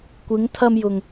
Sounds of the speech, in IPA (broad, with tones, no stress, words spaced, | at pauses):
kʷɪ˨˧ŋt̪ʰɐ˧mjʊ˨ŋ